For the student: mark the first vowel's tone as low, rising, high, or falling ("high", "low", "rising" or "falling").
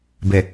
low